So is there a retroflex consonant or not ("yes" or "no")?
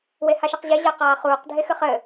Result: no